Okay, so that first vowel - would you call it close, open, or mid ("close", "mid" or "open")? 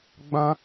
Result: open